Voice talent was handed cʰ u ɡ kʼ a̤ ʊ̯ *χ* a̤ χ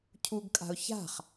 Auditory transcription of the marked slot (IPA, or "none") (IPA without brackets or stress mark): ç